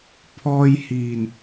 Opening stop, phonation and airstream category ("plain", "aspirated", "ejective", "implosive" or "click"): aspirated